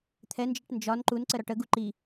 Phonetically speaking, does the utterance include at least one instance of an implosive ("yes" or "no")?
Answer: no